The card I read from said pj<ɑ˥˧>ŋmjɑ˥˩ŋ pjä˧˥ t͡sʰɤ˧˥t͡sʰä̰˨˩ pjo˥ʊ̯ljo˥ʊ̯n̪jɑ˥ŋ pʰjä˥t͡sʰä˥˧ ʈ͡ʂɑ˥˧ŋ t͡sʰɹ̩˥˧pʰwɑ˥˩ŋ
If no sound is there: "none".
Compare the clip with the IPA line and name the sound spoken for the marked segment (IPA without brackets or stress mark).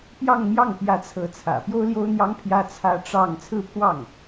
ɑ˥˧